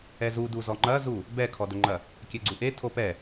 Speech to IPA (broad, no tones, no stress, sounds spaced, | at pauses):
ɛ z u d u z ɔ ŋ͡ǃ ɐ z u | b ɛ kʰ ɔ d ɵ ŋ͡ǃ ɐ | kʲ ɛ ɡ͡ǀ u ʔ e tʰ o p ɛ